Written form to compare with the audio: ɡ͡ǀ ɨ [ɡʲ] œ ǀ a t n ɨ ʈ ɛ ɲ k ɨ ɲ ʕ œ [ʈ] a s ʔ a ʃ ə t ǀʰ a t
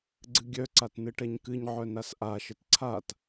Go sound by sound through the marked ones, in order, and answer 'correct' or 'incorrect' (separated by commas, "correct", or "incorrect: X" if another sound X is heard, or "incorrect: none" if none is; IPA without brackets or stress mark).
correct, incorrect: n